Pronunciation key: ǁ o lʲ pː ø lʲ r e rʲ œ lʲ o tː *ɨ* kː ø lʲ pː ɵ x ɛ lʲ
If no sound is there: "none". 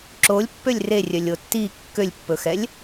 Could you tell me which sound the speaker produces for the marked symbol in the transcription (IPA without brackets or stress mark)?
i